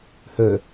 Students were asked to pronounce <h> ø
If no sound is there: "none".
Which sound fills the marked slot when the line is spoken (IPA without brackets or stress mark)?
h